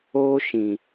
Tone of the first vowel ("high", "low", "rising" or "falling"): high